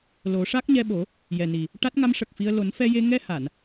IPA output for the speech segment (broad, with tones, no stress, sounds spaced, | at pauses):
l o˨˩˦ ʂ a˦˥ k̚ ɲ ɛ˧ ɓ o˨˩˦ | j ɛ˨˩ n i˨˩ | ʈ a˦˥ t̚ ŋ a˧˥ m ʂ ə˨˩ k̚ f i˧ ə̯ l o˨˩˦ n f ɛ˧ j e˧ ŋ ɛ˧ h a˨˩˨ n